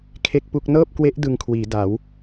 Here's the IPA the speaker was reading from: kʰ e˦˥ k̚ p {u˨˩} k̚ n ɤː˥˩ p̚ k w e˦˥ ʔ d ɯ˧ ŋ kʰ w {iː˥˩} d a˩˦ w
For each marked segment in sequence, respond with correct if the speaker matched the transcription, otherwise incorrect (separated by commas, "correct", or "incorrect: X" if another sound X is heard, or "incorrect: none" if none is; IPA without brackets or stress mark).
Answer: incorrect: u˦˥, incorrect: iː˩˦